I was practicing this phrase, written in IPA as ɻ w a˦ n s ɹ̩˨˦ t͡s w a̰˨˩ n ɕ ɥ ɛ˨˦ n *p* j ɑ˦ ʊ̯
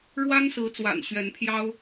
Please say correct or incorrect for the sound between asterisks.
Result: incorrect